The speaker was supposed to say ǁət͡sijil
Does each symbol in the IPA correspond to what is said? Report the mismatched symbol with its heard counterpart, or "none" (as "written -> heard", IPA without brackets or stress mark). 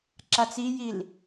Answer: ə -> a